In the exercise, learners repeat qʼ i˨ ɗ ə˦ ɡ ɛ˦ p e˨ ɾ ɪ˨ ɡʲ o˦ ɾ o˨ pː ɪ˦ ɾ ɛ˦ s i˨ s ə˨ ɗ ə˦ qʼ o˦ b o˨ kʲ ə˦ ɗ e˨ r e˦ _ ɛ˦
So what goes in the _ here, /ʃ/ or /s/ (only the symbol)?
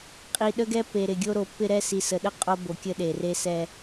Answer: s